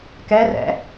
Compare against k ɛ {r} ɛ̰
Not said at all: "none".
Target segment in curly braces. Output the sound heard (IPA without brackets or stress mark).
r